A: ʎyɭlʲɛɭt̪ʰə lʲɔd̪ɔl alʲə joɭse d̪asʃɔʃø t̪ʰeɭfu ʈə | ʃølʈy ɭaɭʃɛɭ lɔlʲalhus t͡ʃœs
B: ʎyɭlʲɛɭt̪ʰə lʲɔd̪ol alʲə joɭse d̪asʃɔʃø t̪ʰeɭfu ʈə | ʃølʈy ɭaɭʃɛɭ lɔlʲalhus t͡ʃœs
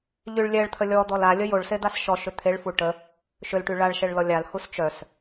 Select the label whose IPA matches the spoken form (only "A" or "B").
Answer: A